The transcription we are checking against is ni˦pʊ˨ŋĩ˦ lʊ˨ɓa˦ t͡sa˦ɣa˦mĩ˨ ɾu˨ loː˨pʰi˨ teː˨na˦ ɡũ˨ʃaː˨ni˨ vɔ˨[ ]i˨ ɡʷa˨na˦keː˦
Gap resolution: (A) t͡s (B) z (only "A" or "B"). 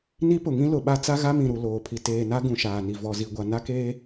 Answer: B